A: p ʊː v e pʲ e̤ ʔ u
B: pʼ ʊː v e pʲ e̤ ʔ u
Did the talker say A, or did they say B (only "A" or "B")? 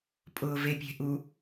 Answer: B